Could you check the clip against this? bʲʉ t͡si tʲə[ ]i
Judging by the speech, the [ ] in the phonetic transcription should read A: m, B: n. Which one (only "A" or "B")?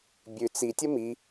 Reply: A